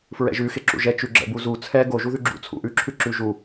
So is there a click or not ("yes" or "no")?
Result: yes